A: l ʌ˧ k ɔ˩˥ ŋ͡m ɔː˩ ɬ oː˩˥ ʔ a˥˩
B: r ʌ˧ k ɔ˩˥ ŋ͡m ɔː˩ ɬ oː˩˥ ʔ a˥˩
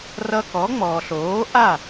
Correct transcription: B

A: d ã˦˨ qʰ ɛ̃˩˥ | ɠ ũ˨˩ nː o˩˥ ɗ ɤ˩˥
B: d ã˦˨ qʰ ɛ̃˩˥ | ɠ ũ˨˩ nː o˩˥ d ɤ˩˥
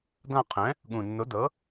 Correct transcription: B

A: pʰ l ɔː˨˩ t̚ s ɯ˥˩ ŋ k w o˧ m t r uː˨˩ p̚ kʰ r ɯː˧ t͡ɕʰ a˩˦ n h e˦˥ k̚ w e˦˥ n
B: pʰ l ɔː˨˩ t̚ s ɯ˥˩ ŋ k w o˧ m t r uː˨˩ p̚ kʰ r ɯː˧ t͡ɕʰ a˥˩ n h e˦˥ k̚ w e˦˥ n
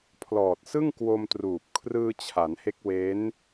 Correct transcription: A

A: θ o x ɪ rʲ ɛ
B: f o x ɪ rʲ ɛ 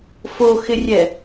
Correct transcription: B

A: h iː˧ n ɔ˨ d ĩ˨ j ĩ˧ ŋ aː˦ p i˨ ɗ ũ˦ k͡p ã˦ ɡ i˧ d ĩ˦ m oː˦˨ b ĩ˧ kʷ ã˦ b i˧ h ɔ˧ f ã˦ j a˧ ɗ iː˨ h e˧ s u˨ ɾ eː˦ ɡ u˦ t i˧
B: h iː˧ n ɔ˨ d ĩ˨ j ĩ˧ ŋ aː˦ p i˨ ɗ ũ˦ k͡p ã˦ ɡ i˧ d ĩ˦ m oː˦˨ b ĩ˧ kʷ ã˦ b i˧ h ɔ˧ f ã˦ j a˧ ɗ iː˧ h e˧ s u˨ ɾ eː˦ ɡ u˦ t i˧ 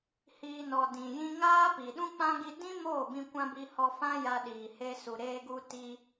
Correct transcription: A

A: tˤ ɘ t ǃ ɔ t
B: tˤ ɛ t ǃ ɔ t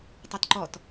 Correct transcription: B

